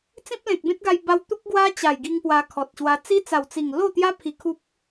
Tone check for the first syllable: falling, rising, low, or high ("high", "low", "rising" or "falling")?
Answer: high